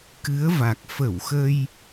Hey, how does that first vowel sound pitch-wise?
rising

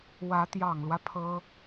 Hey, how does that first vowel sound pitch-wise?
rising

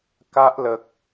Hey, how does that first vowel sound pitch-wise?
high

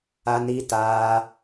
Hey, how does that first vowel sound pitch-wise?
high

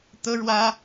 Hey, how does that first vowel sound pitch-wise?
high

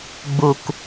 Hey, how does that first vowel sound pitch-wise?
low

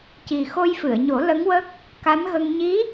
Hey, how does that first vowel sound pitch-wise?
low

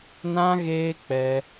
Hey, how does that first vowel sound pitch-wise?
high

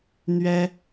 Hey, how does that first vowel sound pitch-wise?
high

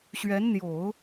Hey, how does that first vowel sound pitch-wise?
rising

